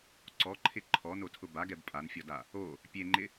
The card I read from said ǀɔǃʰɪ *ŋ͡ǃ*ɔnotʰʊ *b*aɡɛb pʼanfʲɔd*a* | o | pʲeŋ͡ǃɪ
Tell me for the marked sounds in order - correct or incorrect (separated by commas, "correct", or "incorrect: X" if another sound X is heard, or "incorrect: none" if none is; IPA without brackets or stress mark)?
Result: incorrect: ǃʰ, correct, correct